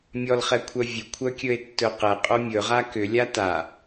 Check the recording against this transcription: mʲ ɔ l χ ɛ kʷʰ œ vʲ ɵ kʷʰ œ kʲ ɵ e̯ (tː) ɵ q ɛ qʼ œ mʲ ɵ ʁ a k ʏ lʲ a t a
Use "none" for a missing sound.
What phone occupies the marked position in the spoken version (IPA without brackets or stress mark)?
tː